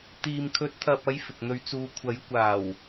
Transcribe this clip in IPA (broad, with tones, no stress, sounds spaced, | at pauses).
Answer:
t̪ iː˨ m kʰ ɵ˨˥ t̚ t̪ʰ ɐ˨ p̚ ɐ˨˧ j f ɪ˨ k̚ n̪ ɵ˨˧ ɥ t͡s uː˨ kʷʰ ɐ˨˥ j kʷ aː˨˩ w